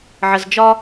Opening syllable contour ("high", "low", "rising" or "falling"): low